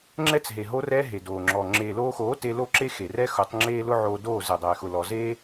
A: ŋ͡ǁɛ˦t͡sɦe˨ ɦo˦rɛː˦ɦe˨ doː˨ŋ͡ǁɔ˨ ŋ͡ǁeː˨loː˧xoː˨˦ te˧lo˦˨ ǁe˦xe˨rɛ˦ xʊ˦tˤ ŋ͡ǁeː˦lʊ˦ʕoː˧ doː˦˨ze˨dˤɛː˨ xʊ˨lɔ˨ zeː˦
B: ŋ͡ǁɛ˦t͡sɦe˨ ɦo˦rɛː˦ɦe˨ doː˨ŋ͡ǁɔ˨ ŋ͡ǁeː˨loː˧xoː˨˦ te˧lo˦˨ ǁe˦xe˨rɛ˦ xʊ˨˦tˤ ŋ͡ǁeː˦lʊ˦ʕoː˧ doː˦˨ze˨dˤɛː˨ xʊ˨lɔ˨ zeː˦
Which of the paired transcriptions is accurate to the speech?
B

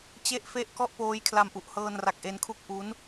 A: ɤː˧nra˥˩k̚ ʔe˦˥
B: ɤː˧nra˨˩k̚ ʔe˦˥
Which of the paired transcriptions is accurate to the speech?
B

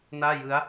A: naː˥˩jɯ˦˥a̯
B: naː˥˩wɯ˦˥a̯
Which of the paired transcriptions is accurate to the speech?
A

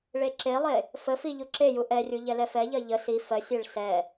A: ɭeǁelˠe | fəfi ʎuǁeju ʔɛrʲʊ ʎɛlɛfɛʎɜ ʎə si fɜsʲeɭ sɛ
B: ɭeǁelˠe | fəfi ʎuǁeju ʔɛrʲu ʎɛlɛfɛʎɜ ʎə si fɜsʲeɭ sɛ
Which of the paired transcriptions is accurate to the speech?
B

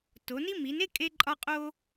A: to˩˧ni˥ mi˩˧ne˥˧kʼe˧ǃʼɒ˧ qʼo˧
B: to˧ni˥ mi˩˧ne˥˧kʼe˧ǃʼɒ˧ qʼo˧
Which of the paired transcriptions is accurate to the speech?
A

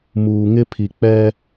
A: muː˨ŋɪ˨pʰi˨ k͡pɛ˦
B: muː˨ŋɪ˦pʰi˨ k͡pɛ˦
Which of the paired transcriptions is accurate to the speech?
B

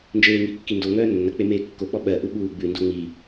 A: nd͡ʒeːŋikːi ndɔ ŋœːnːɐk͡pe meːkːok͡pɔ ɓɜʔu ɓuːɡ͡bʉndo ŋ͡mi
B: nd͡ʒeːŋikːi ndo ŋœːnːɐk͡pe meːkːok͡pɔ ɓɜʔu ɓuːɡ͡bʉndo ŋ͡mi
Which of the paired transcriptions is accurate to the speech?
B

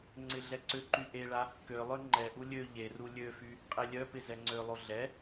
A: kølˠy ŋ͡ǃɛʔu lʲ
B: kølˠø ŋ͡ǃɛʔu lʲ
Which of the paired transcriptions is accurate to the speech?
B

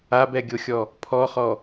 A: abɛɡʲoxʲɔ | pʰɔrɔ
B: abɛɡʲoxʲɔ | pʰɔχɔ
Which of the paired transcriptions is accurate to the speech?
B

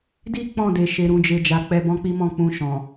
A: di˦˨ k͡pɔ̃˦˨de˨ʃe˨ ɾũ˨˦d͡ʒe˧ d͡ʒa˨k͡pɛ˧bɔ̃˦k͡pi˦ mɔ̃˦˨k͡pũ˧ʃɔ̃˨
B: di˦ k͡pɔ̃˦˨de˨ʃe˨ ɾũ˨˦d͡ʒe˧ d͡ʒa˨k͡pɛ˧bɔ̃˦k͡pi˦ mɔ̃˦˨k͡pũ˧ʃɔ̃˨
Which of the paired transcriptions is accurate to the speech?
B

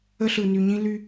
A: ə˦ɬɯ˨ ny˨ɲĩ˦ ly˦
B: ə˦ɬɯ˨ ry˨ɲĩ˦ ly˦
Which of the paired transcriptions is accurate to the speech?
A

